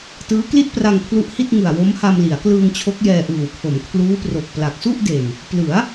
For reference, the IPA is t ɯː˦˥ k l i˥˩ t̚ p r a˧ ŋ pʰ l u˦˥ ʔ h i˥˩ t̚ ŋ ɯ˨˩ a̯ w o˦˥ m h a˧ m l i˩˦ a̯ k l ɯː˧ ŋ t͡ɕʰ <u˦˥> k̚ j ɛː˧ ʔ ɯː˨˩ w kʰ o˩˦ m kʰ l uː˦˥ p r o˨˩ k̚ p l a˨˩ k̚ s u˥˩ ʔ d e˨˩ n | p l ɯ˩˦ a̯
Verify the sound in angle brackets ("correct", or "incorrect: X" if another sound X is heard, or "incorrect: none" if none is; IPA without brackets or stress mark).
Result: incorrect: o˦˥